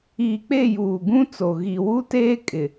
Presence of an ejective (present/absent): present